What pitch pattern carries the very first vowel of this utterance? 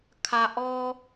low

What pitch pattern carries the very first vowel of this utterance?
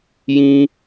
high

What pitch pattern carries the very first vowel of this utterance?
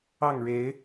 falling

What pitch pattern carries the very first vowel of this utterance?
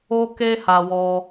high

